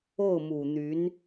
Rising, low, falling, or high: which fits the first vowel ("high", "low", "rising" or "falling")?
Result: falling